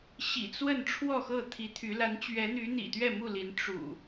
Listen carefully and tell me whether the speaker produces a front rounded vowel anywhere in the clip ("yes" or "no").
yes